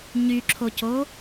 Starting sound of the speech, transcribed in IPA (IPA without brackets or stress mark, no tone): ɲ